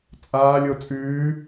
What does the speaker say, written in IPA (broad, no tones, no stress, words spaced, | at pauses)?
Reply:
t͡sʼaːlʲo t͡sʼʉː